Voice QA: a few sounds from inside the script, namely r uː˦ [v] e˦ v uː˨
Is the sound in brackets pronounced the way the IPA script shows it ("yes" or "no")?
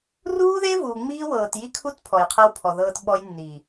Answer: no